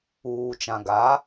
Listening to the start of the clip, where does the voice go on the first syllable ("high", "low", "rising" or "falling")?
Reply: low